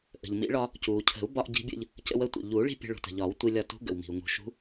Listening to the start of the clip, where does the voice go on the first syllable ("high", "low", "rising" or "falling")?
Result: low